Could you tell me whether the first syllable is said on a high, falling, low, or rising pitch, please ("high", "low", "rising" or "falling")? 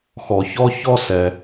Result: low